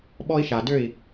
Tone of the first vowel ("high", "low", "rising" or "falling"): high